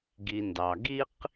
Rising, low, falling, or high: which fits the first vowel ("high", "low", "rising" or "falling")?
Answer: low